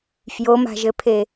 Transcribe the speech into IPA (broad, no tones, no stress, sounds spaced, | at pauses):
f j o m a̤ ʒ ɘ pʰ e